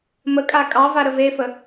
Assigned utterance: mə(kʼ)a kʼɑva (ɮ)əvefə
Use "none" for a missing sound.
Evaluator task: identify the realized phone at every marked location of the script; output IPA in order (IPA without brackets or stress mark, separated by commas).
kʼ, ɾ